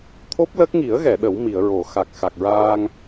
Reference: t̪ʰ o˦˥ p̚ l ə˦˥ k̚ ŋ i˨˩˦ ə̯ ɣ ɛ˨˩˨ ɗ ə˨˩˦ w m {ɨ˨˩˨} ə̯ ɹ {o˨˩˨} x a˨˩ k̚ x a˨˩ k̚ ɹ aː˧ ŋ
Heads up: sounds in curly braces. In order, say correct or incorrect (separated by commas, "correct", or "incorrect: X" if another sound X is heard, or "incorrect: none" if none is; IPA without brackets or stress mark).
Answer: incorrect: i˨˩˨, correct